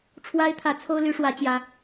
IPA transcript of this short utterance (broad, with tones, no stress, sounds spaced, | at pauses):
ʈ͡ʂʰ w a˦ ɪ̯ t̪ʰ ä˨˦ t͡sʰ o˦ ʊ̯ l y˨˦ ʂ w ä˨˦ t͡ɕ j ä˨˦